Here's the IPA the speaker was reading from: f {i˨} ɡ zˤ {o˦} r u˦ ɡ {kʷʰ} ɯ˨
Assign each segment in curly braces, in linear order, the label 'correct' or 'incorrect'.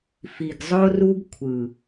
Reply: correct, correct, correct

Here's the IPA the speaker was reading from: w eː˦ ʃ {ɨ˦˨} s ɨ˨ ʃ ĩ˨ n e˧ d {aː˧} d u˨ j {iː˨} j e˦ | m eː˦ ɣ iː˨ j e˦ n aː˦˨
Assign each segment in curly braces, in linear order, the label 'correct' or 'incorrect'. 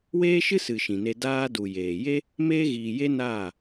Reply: incorrect, correct, incorrect

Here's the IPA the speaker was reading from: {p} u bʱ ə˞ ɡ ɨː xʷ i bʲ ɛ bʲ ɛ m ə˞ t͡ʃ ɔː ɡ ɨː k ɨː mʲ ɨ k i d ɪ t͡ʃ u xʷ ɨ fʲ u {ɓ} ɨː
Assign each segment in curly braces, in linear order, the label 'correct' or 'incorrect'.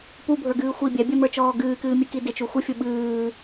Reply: correct, correct

